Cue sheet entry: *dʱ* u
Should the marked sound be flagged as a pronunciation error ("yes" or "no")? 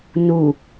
yes